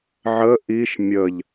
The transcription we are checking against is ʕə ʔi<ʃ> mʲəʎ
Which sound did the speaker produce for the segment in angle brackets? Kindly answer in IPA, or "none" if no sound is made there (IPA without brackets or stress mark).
ʃ